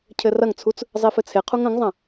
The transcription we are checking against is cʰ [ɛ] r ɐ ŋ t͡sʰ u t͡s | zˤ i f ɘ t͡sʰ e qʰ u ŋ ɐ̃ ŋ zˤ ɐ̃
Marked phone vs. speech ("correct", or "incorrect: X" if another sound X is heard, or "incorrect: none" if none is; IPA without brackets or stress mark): incorrect: ɘ